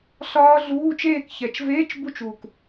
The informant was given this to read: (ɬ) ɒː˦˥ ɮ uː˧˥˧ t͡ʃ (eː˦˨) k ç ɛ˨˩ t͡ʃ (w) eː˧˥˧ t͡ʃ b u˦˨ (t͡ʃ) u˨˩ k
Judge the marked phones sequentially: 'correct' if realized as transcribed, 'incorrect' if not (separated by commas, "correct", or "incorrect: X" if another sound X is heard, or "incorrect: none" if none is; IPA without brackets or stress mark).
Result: correct, correct, incorrect: v, correct